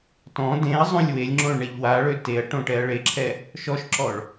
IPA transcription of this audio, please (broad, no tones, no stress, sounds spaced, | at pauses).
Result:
t ɔ̃ d ẽ ɐ̯ zˤ õ lʲ w e lʲ ŋ͡ǁ õ ɭ ɳ ɛ ʎ w a ɭ ø t e ɐ̯ ʈ õ ʈ ɛ ɐ̯ ɭ e ǁʰ ɛ | ʃ ɔ ʃ ǁ ɔ ɭ